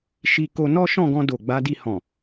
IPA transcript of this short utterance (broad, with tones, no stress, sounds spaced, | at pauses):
ʃ i˧ k o˧ n ɔ˦ ʃ ɔ̃˦˨ ɡ ɔ̃˧ d o˨ ɡ͡b a˨˦ d i˧ h ɔ̃˨